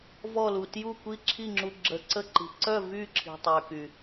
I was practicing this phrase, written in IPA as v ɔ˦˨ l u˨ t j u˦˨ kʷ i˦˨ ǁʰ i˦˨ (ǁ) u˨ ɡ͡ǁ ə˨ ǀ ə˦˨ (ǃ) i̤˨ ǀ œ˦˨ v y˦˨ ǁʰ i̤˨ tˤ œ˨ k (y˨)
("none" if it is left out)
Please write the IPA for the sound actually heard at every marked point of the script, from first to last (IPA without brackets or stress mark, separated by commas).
ŋ͡ǁ, ǃ, y˨